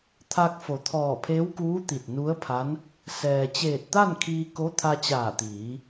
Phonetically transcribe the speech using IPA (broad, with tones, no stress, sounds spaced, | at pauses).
t̪ʰ a˧ k̚ f o˩˧ t̪ʰ ɔː˧˩ pʰ eː˧˥ w k uː˧˥ t̪ i˧˩ t̚ n u˧˥ ə̯ pʰ a˧˥ n | s ɛː˩ t͡ɕ eː˧˩ t̚ t̪ a˥˨ n kʰ iː˧ k o˧˥ t̪ʰ a˧ t͡ɕ aː˧˩ t̪ iː˩˧